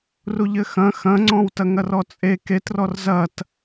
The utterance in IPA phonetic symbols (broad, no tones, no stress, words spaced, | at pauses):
ruʎɘxɐ̃ xɐ̃ŋ͡ǀɔ̃wtɐŋɐr ɔt͡sʼe ketrɔr zɐt